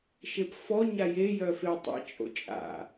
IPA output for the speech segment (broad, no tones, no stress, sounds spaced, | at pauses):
ʃ e p f ɔ ɲ a j e j œ f e tˤ ɛ̰ t͡ʃʼ o̰ t͡ʃʼ a̰